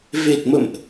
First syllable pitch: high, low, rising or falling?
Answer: low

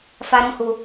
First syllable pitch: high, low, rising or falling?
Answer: low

